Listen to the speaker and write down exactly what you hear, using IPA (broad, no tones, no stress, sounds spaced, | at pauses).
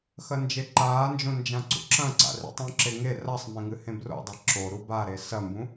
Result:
x ɐ n d͡ʒ e ǃ aː n d͡ʒ õ n d͡ʒ ã ǀ ṵ ǁ ɐ̃ ǀ a̰ r ḭ tˤ ũ ǁ e ŋ e r a sˤ m ẽ ŋ ɨ h ẽ b r o̰ dˤ e ǁ o ɾ u b a ɾ e s ɐ m b ũ